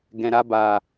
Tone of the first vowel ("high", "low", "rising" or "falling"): low